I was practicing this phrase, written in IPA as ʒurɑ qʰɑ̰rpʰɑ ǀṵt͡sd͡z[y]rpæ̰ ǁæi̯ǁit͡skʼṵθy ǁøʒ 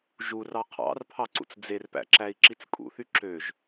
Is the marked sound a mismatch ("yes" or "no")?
yes